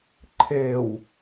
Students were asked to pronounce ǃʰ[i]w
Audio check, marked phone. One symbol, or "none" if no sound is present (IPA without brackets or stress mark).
e